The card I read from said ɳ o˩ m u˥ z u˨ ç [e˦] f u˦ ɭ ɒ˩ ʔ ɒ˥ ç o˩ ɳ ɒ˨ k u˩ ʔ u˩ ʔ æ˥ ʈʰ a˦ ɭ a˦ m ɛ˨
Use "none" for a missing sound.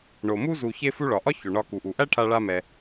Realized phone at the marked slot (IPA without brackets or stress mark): e˦